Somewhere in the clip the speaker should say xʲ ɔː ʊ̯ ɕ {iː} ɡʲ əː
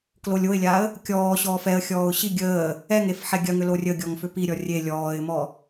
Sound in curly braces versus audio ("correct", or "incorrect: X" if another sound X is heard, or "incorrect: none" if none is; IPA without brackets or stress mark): incorrect: i